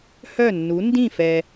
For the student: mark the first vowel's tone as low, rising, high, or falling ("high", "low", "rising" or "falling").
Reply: falling